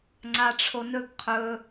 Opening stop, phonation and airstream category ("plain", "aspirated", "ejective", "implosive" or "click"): click